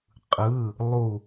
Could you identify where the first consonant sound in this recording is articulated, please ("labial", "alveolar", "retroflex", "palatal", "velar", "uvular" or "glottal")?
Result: uvular